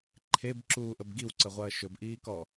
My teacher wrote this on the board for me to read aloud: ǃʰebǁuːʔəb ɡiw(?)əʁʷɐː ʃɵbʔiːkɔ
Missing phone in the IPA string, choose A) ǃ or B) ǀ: B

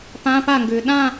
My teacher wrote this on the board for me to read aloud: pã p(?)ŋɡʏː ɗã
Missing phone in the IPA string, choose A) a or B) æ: A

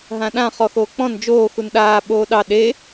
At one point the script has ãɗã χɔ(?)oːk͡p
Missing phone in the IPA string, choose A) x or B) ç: A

